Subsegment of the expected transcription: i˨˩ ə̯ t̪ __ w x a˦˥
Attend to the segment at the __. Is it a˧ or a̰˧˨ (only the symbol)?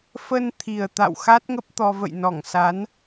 a̰˧˨